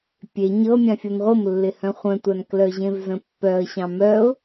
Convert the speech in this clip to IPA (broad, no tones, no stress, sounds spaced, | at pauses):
pʲ e ɲ ɤ mʲ ã fʲ ɤ n ʁʷ ɤ m lː ɪ h œ̃ χʷ œ̃ tʷ a n k l œ ʑ ẽ v z ə̃ pː œ ə̯ ɕ ɑ̃ m œ ʊ̯